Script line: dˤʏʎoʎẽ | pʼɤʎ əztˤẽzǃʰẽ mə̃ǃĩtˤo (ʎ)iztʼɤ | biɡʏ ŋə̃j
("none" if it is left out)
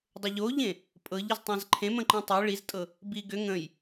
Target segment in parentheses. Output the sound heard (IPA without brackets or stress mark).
ɭ